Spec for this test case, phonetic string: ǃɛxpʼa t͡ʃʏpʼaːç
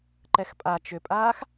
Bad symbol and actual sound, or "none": ç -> x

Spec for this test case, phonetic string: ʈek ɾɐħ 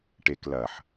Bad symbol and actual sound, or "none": ɾ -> l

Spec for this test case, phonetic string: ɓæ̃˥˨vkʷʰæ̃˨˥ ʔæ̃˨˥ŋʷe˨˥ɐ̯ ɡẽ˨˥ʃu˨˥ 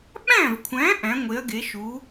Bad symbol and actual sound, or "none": ẽ˨˥ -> e˨˥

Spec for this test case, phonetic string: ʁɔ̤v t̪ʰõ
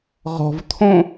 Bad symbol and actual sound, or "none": none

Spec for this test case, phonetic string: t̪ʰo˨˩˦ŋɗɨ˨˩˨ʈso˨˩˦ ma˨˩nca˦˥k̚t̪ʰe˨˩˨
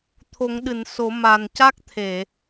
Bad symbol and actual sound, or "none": ʈ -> n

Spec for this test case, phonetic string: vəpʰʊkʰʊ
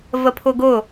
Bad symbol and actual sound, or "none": kʰ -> ɡ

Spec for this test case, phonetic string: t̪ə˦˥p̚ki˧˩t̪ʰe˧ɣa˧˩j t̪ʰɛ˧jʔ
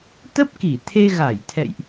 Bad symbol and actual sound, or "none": ɛ˧ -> ɛ̰˧˨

